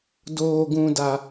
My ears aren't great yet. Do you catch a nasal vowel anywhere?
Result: yes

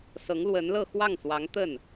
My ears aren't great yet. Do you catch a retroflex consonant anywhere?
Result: no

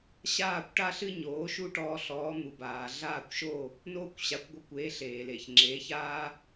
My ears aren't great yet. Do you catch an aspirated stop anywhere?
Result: no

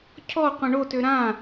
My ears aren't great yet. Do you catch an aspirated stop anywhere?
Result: yes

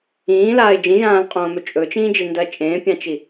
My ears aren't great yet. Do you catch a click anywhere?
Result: no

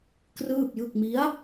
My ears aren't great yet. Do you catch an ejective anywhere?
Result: no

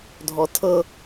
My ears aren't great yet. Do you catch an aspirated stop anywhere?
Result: yes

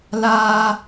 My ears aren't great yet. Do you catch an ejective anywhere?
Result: no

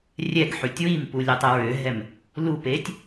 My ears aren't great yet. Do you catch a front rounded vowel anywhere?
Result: yes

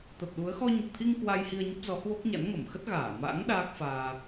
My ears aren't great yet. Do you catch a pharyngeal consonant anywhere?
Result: no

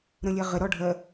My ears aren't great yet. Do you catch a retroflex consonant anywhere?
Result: yes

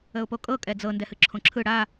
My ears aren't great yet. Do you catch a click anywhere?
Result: yes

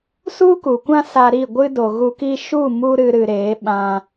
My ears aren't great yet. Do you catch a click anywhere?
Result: no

